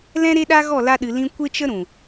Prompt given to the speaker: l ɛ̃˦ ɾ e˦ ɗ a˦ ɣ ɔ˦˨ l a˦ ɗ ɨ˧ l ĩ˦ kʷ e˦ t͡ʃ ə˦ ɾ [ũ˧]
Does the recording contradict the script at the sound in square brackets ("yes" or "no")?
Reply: yes